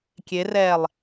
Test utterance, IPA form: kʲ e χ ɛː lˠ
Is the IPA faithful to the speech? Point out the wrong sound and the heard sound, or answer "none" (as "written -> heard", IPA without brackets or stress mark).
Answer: χ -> r